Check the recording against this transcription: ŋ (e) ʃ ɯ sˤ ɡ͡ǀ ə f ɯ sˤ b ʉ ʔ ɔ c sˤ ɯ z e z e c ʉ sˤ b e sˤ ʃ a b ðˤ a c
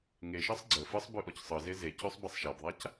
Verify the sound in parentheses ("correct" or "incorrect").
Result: correct